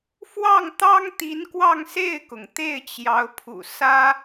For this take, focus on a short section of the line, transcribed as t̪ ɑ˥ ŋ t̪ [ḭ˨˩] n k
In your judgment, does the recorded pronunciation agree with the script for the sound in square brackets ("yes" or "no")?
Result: no